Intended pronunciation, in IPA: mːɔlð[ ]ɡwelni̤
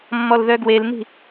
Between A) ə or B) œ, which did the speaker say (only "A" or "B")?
B